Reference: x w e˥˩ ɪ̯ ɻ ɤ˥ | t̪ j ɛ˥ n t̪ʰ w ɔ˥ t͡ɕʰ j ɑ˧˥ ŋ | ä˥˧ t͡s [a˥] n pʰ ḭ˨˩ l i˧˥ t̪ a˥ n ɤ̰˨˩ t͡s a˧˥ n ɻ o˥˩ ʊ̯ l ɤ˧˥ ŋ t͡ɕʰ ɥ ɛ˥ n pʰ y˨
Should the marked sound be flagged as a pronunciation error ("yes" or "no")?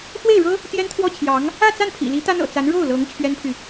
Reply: yes